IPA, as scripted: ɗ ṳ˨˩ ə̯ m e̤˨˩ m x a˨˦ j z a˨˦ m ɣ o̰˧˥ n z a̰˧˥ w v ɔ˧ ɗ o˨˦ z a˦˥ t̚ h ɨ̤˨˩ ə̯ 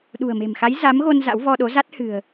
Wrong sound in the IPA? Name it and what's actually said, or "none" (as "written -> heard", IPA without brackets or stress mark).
o̰˧˥ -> o˧